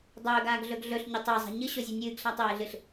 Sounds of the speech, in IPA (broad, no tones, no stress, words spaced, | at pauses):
dˤɵːɡaːɡɮɵɡ ɮɵɬɲetˤ ezˤa̤ ɲɨɕozʲo nʲɨːɡɬatˤeːɮɨɬ